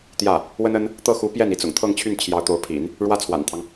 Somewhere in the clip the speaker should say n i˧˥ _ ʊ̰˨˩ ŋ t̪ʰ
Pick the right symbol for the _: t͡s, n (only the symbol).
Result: t͡s